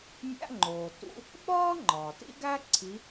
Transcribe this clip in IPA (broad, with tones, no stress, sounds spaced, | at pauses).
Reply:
mʲ æ̰˧˥˧ ŋ͡ǃ oː˩ t ṵ˧˥˧ | ɓ ɒː˥ ŋ͡ǃ ɒː˩ t ḭ˥ ɡ æ˥ ǀʰ i˨˦